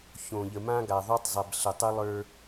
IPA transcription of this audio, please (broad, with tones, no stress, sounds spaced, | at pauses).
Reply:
ç õ˨ ʎ ə˨ m ã˦ ɡ a˨ ðˤ o˦ tˤ zˤ ɛ˨ b ɬ ə˨ tˤ ə˦ lˠ ə˞˦